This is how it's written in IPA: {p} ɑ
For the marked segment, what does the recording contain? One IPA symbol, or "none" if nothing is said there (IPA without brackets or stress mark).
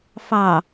f